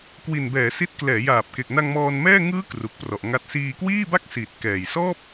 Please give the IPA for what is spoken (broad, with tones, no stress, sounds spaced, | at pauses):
k w i˨˩ n b ɛː˩˦ s i˦˥ t̚ k l ɛː˩˦ j aː˨˩ p̚ k e˨˩ k̚ n a˧ ŋ m ɔː˧ n m ɛː˥˩ ŋ ɯː˦˥ k r u˨˩ k̚ p r ɔ˨˩ ʔ ŋ a˦˥ t̚ s iː˧ k w iː˥˩ b a˥˩ k̚ s iː˨˩ t̚ k ɛː˨˩ j s ɔː˥˩ p̚